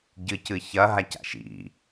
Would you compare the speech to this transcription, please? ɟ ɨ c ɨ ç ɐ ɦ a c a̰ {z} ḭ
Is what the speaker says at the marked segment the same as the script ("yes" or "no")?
no